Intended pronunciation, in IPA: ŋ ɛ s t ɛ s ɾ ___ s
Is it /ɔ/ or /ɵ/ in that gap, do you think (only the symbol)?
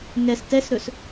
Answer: ɵ